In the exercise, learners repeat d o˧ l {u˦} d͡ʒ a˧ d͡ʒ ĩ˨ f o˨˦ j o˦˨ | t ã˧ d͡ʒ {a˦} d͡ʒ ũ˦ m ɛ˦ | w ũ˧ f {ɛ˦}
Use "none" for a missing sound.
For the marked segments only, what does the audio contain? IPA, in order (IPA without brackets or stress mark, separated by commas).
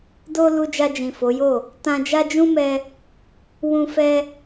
u˧, a˦, ɛ˦